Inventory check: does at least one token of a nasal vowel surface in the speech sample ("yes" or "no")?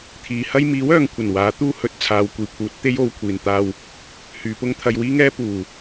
no